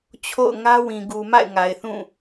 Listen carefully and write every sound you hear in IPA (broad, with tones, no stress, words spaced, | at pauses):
t͡ɕʰo̰˦˨ʊ̯ ŋä˦wĩ˨ ɡu˨ma̰˦˨ɪ̯ ŋa˨ɪ̯θũ˦˨